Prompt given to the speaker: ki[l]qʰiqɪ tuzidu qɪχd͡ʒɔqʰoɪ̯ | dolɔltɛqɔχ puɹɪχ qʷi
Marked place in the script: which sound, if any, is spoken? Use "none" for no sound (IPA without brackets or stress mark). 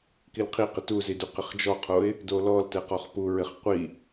l